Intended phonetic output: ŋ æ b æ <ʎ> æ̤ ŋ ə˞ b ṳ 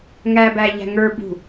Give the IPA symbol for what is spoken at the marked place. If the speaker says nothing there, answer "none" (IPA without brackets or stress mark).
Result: ʎ